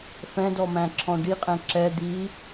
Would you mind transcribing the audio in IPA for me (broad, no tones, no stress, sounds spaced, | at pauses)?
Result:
f ɛ̃ d ɔ m æ̃ ǁʰ ɔ̃ ɖ i qʼ ɛ̃ ǁ ɛ d̪ i